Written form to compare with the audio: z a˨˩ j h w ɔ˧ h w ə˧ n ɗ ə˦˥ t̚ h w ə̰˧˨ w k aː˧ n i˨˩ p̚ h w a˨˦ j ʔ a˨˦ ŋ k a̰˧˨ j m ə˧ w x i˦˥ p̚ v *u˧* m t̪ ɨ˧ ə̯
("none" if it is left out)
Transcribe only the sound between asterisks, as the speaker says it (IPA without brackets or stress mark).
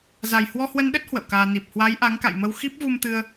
u˧